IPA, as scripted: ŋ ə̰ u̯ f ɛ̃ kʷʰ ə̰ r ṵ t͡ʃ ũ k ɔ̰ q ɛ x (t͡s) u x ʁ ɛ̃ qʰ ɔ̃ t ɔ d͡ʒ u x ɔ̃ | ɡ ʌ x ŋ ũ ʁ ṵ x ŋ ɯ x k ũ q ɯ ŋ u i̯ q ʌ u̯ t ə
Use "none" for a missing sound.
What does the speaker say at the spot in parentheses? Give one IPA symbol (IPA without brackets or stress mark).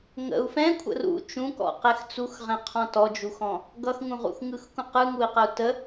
t͡s